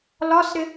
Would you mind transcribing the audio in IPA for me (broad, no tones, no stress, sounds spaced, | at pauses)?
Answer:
l ɒ s ɾ ɪ